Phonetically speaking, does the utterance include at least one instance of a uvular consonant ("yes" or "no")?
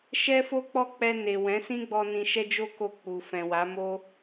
no